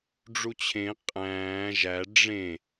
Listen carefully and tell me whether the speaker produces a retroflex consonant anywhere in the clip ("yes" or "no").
yes